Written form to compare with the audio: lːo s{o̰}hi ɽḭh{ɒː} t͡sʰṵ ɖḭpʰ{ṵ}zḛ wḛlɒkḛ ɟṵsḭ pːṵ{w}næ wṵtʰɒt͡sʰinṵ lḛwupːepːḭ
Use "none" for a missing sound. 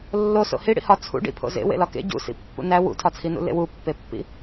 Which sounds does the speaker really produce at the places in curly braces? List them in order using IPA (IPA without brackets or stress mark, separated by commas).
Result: o̰, ɒ, o̰, none